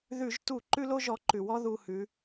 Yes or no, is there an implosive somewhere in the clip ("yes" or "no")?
no